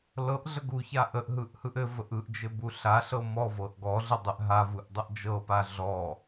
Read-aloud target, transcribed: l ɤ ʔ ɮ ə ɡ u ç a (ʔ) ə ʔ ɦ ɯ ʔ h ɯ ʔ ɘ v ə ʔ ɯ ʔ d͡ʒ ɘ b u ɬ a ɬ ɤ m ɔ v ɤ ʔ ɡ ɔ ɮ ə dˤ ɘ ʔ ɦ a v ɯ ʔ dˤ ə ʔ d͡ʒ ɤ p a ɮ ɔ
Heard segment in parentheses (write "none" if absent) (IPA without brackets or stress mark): ʔ